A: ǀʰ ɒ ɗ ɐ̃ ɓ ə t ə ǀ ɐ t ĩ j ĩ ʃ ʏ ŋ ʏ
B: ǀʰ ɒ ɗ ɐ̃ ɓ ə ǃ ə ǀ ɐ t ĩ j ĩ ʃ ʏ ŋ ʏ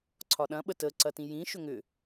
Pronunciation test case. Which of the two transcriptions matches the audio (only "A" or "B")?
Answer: A